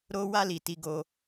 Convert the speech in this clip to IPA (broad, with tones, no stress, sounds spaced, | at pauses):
ɾ o˧ w a˧ l i˨ t i˧ ɡ o˧